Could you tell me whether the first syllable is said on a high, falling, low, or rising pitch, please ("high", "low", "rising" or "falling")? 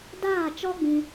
falling